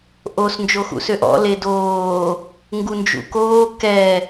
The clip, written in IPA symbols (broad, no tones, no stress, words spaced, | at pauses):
ʔos nd͡ʒoxṵsøʔɔ̰ ledoː | ŋɡund͡ʒṵkoː kɛ